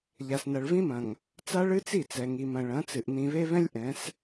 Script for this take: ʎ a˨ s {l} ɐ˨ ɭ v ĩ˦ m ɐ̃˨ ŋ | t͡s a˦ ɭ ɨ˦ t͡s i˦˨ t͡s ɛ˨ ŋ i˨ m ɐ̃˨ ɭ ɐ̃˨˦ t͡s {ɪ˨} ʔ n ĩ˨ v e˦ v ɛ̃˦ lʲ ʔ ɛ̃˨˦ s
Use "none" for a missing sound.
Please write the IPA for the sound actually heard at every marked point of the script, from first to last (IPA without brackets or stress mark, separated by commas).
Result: n, ɨ˨